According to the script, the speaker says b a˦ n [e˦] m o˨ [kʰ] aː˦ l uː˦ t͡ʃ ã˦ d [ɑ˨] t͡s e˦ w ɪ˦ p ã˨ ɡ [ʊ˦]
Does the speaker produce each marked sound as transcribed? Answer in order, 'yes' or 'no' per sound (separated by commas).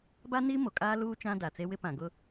no, no, no, yes